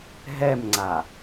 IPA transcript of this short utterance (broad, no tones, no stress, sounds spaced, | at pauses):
ɦ ɛ m ŋ͡ǀ a